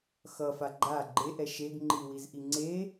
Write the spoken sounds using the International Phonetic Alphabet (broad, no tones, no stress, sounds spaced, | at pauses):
x ʌ f a ɡ͡ǃ a ɡ͡ǃ e ʔ ɛ ʃ e ɡ ŋ͡ǃ i w i z ʔ i ŋ͡ǀ e